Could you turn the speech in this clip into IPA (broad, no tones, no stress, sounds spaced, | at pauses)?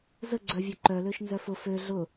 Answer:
z ə ɡ͡ǀ œ vʲ ø ǃ œ l ø ʃ n z œ f ʊ f ø ɮ ʊ